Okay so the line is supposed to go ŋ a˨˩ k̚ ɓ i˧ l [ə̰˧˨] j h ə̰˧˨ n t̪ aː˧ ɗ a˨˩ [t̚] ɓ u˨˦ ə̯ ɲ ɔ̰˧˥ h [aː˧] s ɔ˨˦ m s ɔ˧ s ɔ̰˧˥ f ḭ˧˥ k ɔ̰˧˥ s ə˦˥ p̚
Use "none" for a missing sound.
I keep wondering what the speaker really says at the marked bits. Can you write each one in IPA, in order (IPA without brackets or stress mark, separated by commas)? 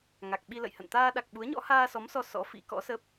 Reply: ə̰˧˨, k̚, aː˧